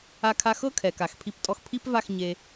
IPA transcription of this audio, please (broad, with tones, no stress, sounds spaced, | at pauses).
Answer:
a˦ kʰ a˦ x ɤ˦ kʰ ɛ˨ k a˨ x pʰ i˧ p tʼ ɔ˧ x pʰ i˦ p v a˦˨ x ɲ e˧